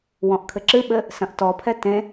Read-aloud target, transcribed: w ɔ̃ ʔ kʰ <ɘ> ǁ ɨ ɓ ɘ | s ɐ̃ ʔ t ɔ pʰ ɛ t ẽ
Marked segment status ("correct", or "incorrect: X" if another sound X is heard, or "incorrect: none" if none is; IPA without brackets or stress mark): correct